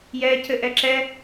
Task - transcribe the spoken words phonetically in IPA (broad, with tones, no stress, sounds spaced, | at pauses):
j ɛː˦ cʰ ɘ˦ ʔ ɛ˦ ǁ ɛ˦